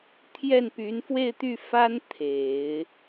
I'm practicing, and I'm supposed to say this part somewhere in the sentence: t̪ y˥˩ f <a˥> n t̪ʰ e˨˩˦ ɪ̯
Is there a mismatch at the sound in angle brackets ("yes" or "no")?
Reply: no